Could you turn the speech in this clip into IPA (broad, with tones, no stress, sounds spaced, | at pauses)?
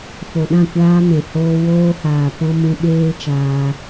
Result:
f o˨ ɗ ã˦˨ kʷ aː˧ m ɛ̃˨ h oː˧ w oː˧ h aː˨ p ɔ̃˧ m ũ˧ ɓ eː˦ t͡ʃ aː˧